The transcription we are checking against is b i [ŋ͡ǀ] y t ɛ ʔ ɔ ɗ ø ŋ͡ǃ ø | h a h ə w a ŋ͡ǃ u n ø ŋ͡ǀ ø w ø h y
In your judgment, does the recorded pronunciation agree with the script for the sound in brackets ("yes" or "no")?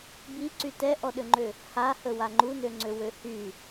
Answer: no